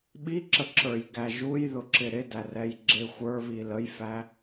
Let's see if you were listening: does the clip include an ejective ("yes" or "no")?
no